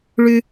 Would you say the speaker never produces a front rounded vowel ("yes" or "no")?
no